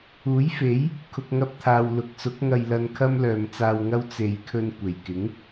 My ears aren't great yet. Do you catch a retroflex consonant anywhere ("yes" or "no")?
no